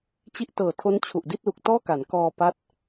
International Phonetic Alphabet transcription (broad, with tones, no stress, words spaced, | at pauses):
t͡ɕi˦˥ʔtɤː˨˩tʰo˦˥n t͡ɕʰu˨˩ʔdi˥˩t̚lu˨˩k̚ tɔː˥˩ka˩˦n kɔː˧pa˦˥t̚